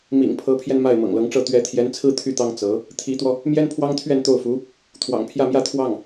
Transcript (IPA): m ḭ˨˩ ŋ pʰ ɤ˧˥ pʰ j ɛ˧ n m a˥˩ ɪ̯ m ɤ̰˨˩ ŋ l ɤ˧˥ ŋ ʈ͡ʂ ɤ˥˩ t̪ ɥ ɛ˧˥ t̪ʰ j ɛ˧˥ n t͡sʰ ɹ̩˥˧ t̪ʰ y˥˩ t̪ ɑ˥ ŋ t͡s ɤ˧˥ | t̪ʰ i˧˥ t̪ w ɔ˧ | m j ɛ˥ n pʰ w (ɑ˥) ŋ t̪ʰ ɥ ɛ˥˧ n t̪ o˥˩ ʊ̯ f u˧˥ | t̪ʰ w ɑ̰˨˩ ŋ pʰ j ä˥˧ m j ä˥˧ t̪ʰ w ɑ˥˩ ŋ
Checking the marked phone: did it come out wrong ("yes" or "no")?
no